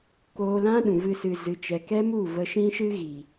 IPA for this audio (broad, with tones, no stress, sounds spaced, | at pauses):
k oː˧ l ã˦ ɗ ũ˨ v ɨ˧ s ɨ˨ z ɨ˨ t͡ʃ ɛ˨ k ɛ˦ m u˦˨ v ə˧ ʃ ĩ˦ ʃ ɨ˦ ɣ i˨